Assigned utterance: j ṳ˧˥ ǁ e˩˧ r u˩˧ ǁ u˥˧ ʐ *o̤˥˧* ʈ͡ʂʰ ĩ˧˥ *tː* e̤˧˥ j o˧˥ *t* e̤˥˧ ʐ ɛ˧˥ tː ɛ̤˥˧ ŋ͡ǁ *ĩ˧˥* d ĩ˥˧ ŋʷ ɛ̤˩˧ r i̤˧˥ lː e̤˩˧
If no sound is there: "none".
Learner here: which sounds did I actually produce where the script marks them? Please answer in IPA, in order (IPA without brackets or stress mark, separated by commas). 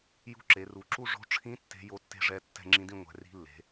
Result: o̤˧˥, tː, tː, ĩ˧˥